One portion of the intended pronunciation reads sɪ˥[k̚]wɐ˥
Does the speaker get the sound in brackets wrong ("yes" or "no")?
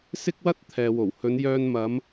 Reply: no